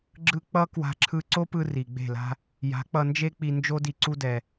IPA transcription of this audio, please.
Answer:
ɡ͡ǁ ɯ˧ k͡p ʌ˦ k w a̤˧ ǁʰ ɯ˧ ǀ o˦ p ɯ˧ r i˨ ɡ͡b e̤˦˨ l a̤˦ | j a̤˨˦ k͡p ʌ˧ n d͡ʒ e˦ k͡p i˧ n d͡ʒ o˦ d i˧ ǀ u˦ d ɛ˧

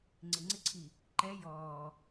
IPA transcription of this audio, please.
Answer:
ŋ͡ǀ ɪ ŋ͡ǀ ɪ ǀʰ i | ǃ ɛ j ɔː

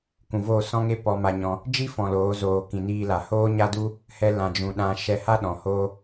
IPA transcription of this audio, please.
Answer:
k ũ˨ v oː˦˨ s ɔ̃˦ ŋ e˦ p ɔ˧ m a˧ ɲ ɔ̃˧ | d͡ʒ i˦ f ɔ̃˨ l oː˨˦ z oː˨ k ĩ˨ n iː˧ l a˨ h oː˦ ɲ a˦ d u˦ | h ɛ˧ l ã˨ d͡ʒ ũ˨ ɗ ã˧ ʃ ɛ˧ h a˦ ɗ ɔ̃˨ h oː˦

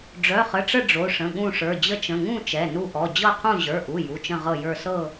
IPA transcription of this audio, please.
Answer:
ɖ͡ʐ œ˩˧˩ χ ə˩˧˩ ʈ͡ʂ ə˦˨ ɖ͡ʐ o˩˧˩ ʂ ə̃˩˧˩ ɠ ũ˦˨ ʂ ə˞˩˧˩ d͡ʑ ə˦˨ t͡ʃ ə̃˩˧˩ ŋ ũ˦˨ t͡ʃ ɛ˩˧˩ n u˦˨ ʔ ɔ˩˧˩ d͡ʑ ɤ˦˨ qʰ ũ˦˨ ʑ ə˞˩˧˩ ʔ u˩˧˩ j u˩˧˩ t͡ʃ ə̃˦˨ ʁ ɤ˦˨ j ə˞˦˨ s ɤ˦˨

